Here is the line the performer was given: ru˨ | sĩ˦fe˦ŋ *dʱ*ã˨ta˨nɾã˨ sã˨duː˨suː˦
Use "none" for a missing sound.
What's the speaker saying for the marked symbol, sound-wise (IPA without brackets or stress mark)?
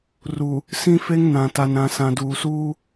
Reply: n